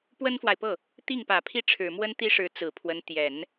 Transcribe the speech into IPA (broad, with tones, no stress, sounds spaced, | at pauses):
p w ə˥ n f w a˨ ɪ̯ p ɤ˥˩ | t̪ i˥˩ ŋ p ä˨˩ pʰ i˥˩ ʈ͡ʂʰ ɻ̩˨˩ m w ə˥ n t̪ i˥ ʂ ɻ̩˧˥ t͡s ɹ̩˨˩ pʰ w ə˧˥ n t̪ j ɛ˨˩˦ n